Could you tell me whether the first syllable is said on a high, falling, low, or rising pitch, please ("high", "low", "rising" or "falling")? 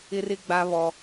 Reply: high